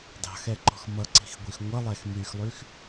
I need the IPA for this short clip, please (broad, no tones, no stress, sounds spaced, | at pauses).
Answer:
d ɑ̤ x ɛ ǃ ɔ̤ x m ʌ ǀ i̤ x ɡʷ i x ŋʷ ʌ lˠ ɛ x m y x lˠ y x